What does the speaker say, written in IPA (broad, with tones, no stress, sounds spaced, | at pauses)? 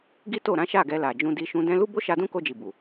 ɡ i˦ t o˦˨ ɾ ã˨˦ ʃ a˦˨ ɡ ɛ˧ l a˨ d͡ʒ ũ˧ d i˧ ʃ ũ˧ d ɛ̃˧ l u˦ b o˦ ʃ a˧ d ũ˦ k o˧ d͡ʒ i˨ b u˨